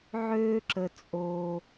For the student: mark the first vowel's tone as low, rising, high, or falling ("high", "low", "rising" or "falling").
high